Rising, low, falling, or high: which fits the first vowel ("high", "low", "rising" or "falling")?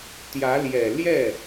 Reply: rising